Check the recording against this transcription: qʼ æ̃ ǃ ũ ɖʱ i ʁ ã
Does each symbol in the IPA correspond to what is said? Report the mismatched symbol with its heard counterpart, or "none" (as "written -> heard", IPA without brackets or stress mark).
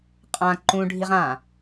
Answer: æ̃ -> ã